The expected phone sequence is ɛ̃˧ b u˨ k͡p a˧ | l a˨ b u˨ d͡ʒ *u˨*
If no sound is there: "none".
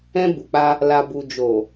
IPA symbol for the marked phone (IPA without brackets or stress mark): o˨